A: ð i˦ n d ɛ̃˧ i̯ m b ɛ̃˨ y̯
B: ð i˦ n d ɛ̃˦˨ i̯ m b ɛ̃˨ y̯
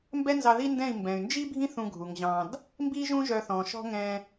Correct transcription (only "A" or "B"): B